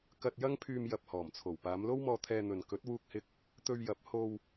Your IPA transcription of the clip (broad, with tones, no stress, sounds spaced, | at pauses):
k ɐ˧ t̚ j ɐ˥ ŋ pʰ yː˧ m j ɐ˧ p̚ h ɔː˨˩ m t͡sʰ o˨˩ w p aː˨˧ m l o˥ w m ɔː˧ t̪ʰ ɛː˧ n̪ ɵ˨ n k ɵ˨˥ t̚ w uː˧ k̚ h ɪ˧ k̚ | t̪ ɵ˧ ɥ j ɐ˨˥ p̚ h o˧ w